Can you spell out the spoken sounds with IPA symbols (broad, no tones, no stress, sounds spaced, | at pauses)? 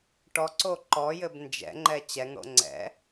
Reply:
ʈ ɔ ǀ o ǃ ɔ j ɘ b n d͡ʒ ɛ̰ ŋ͡ǃ ɛ t͡ɕ ɛ ŋ ɽ o̰ ŋ͡ǀ ɛ̰